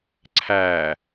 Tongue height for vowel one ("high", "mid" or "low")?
low